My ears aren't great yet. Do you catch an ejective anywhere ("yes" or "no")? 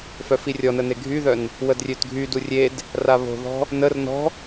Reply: no